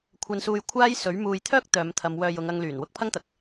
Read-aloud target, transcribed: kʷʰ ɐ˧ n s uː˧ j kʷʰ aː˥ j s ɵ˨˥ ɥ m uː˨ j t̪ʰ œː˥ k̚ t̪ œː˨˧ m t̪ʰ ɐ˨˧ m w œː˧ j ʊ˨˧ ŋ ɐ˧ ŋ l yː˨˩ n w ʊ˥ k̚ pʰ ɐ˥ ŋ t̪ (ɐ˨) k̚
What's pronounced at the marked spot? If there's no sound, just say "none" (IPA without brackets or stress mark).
ɐ˨